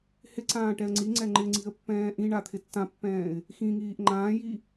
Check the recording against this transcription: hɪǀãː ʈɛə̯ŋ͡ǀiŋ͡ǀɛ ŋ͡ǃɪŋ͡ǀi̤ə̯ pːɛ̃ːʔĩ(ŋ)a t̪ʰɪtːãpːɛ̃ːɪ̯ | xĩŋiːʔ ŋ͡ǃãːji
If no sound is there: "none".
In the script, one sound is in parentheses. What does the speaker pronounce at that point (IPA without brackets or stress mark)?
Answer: ɳ